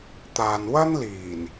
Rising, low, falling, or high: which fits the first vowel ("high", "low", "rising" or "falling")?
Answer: low